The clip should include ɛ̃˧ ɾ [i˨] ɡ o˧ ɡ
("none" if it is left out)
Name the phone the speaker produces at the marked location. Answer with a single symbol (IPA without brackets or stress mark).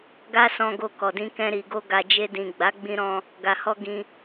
i˨